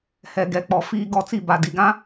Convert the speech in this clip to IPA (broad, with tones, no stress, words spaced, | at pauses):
hɛ˨ɡɛ˨k͡pɔ˨ fiː˨ɡɔ˨ t͡si˦˨ ba˨di˨ɡã˦